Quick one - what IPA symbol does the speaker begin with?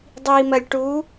dˤ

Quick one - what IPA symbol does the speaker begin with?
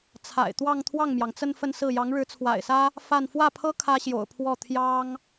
t͡sʰ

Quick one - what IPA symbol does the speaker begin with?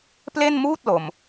p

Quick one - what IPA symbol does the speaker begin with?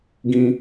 ɡ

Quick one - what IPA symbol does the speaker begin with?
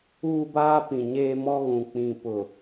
uː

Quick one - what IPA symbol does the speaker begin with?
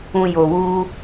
ũ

